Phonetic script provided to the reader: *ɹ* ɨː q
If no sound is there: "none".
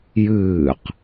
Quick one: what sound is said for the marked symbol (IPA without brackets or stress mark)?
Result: j